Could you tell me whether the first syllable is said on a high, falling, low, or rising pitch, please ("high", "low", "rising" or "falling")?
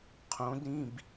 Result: rising